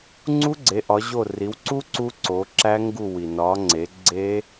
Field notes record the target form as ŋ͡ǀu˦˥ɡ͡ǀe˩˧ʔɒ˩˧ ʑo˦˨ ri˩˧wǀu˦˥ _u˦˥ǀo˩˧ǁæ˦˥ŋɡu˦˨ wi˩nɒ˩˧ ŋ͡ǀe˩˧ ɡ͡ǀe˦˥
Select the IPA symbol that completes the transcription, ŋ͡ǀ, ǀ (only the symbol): ǀ